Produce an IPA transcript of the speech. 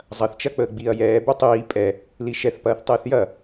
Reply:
zˤ ɐ θ t͡ʃ ɐ k͡p əː ɡ͡b iː ɐ̯ j ɛː b ɛ tˤ iː pʼ ɛ | l i ʃ ɛ θ p ɐː θ tˤ iː θ j ɐ

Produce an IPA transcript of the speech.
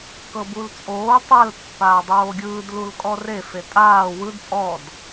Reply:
k ɤ b u l t͡sʼ oː tˤ a l pː aː dˤ oː ɡʲ ɯː d l u l kʼ ɔ r e f e tʼ aː w ɯ d pʼ ɔ d

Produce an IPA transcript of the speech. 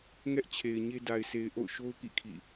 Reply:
ŋ ɛ˦ ʔ t͡ɕʰ e˨ ɪ̯ ɲ e˦ d a˨ ɪ̯ s e˨ ɪ̯ ʔ o̰˦˨ ʊ̯ ʃ o˦ ʊ̯ k ḭ˦˨ kʰ ḭ˦˨

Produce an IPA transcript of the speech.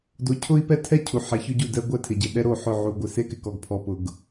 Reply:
d o˦ cʰ ʊ˦ i̯ p ɛ˦ tʰ ɛ˦ cʰ u˨ ħ ɛ˨ ç ʊ˦ ɟ u˦˨ d ɛ˦ ɡʷ ɛ˦ tʰ ɪ˨ ɟ ɪ˨ ɗ ɛ˦ ɾ o˦˨ ħ ʊ˦˨ ʕ u˨ ɡʷ ɪ˨ s e˦ k ɪ˨ k ɔ˨ ɡ pʰ ɔ˨ p ʊ˨ ɡ

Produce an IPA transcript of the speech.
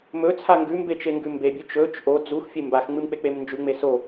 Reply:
m ɵ t͡sʰ a ŋ ɡ ʉ m b e t͡ʃ e ŋ ɡ ʉ m b e bʲ ɵ t͡ʃ ɵ t͡ʃ ʔ o d͡z u x fʲ e m b a x ŋ͡m ɨ m k͡p e k͡p e m n d͡ʒ ʉ ŋ͡m e s o

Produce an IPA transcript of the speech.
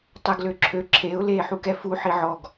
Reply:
tˤ ɛ ɡ l ø ǁʰ ø ǁʰ e ʊ̯ l eː ħ u k ɛ f u ħ i ʕ ɔ ɡ

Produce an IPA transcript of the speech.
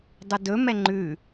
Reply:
dˤ u d ɵ m ɛ ŋ͡ǃ ʉ

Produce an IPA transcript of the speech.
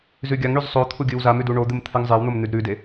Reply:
z ʉ ɡʲ a ŋ ɳ ʉ z sˤ o t̪ʰ u ɡʲ ɨ w z a m ʉ d u ɳ o d̪ ɨ m t̪ʰ ɨ ŋ zˤ e w n̪ o m n̪ ʉ d ɾ ʉ d e

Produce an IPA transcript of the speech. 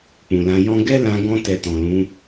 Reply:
k͡p ũ˨ l ã˨˦ j ɔ̃˧ ɡ ɛ˦ l ã˧ ɡ ɔ̃˧ t ɛ˧ t ɔ̃˨ l ũ˨˦

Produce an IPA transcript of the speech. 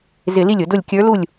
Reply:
z ɪ˧˩˧ l i˥˩ lʲ ʊ˧˩˧ d ʊ˥˩ lʲ kʲ ə˞˧˥ l u˥˩ lʲ

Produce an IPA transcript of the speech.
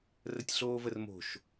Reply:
r ə tʲ ɬ oː v ə r m o̤ ʃ

